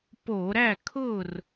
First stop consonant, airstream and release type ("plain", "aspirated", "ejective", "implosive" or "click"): plain